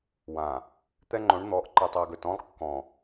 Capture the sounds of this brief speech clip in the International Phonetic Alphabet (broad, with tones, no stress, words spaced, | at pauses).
wã˨ | t̪ɛ˦ŋ͡ǃõ˨˦ɳ n̪ɔ˨˦ʔǃɨ˨tˤɛ˨ɡɵ˨t ɔ̃˦lˠkːɔ̃˨